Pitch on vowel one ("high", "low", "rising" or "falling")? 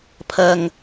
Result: low